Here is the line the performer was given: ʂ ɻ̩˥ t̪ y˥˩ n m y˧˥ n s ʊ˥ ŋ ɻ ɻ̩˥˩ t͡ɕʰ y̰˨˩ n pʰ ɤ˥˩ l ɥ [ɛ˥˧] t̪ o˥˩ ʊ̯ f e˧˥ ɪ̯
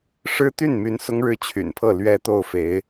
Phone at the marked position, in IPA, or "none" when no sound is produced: ɛ˥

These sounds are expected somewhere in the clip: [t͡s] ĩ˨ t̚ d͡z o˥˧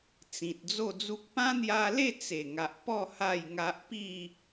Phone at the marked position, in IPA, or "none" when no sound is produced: t͡s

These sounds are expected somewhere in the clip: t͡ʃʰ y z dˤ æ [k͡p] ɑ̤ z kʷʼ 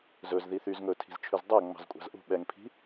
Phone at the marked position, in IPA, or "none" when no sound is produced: ŋ͡m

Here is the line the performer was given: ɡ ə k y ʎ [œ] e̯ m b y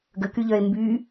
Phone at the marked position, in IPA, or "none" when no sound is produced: œ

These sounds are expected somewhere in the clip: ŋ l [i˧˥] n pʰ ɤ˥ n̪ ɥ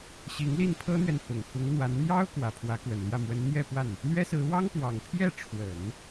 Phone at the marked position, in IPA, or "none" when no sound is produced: i˥˩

